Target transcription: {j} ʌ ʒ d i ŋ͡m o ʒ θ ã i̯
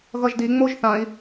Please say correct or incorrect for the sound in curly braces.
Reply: incorrect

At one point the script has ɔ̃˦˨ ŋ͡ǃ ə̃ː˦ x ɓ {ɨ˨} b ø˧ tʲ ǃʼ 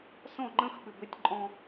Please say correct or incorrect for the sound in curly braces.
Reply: incorrect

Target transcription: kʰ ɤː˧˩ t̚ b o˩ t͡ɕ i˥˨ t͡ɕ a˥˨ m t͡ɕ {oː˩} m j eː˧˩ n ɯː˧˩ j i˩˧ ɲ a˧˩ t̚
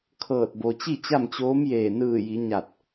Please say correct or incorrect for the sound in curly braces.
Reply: incorrect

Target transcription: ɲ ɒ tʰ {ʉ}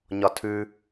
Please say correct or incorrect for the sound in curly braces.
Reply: correct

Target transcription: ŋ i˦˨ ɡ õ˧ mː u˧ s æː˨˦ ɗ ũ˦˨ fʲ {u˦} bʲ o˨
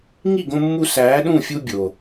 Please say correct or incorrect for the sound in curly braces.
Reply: correct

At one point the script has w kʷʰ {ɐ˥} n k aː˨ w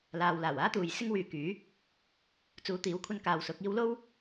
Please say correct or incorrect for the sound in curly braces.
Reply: incorrect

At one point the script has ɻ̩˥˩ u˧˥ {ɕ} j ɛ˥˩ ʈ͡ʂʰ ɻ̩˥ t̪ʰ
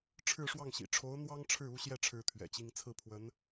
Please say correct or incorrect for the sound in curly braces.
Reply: correct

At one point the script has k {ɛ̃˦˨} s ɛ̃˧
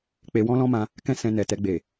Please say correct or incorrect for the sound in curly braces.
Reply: incorrect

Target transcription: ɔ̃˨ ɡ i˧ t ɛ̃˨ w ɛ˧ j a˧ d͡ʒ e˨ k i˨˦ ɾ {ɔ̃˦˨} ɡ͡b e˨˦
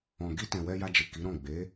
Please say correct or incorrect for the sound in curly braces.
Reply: correct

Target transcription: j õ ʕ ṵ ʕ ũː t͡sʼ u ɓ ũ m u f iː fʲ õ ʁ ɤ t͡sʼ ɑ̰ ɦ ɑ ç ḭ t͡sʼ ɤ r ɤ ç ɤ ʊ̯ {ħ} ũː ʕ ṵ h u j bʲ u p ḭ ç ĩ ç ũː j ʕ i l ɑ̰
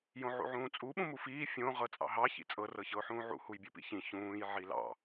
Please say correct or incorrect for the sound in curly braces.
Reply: correct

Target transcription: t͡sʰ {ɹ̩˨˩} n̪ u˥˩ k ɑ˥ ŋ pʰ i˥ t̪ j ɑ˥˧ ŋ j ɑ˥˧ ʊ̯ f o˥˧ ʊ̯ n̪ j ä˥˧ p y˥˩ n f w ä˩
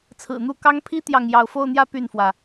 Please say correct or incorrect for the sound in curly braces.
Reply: correct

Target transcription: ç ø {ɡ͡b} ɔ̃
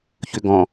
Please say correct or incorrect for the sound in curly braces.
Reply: incorrect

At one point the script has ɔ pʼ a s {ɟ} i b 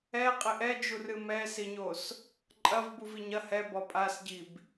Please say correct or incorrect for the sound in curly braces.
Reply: correct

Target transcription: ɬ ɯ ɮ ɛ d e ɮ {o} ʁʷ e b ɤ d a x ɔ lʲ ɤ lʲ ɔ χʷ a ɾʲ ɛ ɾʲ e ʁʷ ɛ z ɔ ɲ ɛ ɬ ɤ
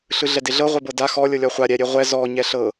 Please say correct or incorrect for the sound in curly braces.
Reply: incorrect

